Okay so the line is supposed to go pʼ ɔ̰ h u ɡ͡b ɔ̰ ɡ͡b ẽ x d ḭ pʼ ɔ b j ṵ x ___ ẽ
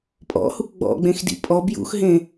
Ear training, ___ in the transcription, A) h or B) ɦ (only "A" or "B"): B